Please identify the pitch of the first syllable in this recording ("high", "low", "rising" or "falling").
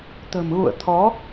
low